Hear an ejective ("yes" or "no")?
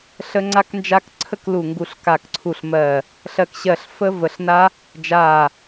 no